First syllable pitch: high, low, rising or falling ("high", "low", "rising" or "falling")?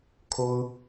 high